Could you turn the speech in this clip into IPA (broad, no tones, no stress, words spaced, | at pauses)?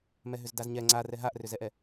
mɛɦʏzdazɲɛ ŋ͡ǀarɛ ɦaʔrʏzɛʔɛ